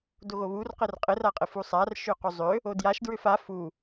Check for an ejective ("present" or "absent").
present